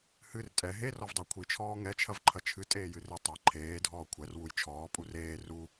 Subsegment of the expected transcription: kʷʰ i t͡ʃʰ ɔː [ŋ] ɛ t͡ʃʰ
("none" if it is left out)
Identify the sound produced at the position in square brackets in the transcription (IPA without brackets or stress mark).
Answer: ŋ